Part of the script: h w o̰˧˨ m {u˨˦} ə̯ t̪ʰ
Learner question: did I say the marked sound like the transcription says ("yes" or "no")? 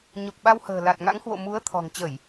yes